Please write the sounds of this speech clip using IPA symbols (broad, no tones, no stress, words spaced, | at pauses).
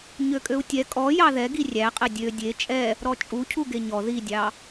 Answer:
ɲøkʼøu̯tʲɛ kʼɔ jɑðɛɡi rʲæqʼɛ dʲø dʲe t͡ʃʼɛ | ɾɔt͡ʃʼu cʰuɡeɲɔ ðidʲɑ